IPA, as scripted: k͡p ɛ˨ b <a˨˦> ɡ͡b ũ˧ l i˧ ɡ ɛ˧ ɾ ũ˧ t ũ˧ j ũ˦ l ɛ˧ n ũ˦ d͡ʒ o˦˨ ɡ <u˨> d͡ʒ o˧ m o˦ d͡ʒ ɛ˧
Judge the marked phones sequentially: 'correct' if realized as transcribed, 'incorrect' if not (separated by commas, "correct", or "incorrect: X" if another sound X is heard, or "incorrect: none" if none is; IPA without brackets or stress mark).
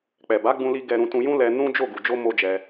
correct, correct